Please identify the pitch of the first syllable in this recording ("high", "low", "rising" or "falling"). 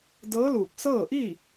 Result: rising